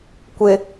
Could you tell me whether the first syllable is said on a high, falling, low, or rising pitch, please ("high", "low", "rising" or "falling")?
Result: low